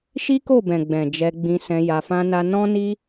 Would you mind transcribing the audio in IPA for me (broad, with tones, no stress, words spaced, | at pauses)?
ʃi˦ko˦˨bɛ̃˨ɡ͡bɛ̃˨ d͡ʒɛ˧ɡ͡bĩ˧sɛ̃˧ ja˧fã˦na˦ nɔ̃˦ni˦